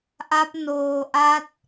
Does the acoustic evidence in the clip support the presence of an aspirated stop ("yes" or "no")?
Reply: no